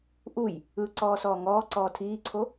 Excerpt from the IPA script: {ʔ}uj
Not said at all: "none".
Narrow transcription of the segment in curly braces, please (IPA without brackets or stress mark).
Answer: ʔ